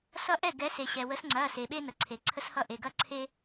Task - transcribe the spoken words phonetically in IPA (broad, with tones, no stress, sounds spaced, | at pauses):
s ʌ˦ ʔ ɛ˥˩ ɡ ɛ˨˦ s e˩ ɕ ɛ˩ w ə˨˦ s ŋ͡ǀ ɐ˩˧˩ s e˩ ɓ e˦ n ə˩ ǀʰ e˩ ǀʰ ə˦ s h ʌ˦ ʔ e˩ ɡ ɐ˦ ǀʰ e˦